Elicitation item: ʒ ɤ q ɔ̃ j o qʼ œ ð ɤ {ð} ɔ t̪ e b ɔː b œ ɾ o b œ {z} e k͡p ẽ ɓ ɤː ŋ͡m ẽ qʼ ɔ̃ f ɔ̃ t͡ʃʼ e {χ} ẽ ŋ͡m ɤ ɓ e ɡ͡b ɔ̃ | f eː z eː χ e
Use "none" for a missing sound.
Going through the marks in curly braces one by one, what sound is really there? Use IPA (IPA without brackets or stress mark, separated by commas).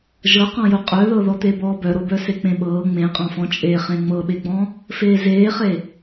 ð, s, χ